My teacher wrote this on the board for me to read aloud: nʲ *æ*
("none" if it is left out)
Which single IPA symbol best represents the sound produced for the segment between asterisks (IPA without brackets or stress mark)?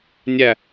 æ